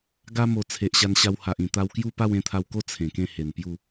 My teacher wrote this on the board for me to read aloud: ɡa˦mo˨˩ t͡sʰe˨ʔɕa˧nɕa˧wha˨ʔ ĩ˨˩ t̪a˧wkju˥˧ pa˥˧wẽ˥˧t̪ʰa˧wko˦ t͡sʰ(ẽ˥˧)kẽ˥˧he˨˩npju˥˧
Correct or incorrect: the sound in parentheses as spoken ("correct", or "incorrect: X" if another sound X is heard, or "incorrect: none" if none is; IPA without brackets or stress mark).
incorrect: ẽ˨˩